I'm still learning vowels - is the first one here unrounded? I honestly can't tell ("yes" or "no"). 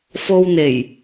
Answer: no